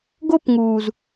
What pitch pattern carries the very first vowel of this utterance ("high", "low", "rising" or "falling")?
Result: high